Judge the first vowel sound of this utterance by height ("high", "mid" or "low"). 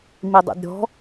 high